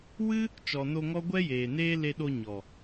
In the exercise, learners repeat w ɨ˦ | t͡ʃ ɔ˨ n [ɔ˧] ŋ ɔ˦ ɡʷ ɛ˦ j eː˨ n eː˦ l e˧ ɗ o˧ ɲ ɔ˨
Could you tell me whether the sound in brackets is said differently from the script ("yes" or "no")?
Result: yes